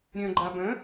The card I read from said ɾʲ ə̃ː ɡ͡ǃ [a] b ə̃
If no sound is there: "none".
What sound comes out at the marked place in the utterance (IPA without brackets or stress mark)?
a